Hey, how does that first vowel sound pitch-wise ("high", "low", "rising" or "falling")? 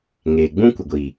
low